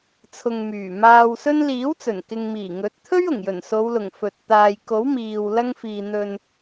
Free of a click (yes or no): yes